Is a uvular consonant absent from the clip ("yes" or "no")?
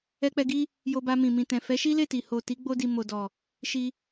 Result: yes